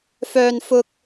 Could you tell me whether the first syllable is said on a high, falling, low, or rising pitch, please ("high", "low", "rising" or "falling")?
high